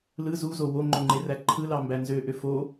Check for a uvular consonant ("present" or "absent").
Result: absent